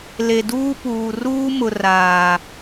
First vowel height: mid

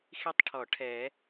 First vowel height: high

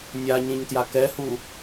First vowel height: low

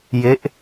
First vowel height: mid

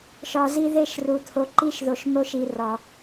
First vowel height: low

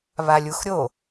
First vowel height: low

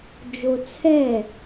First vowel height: mid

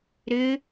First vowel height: high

